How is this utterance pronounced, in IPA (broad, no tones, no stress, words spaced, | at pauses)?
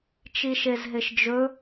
t͡ʃiʃezɦeʃd͡ʒɵ